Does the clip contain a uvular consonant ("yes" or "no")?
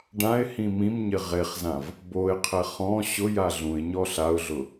yes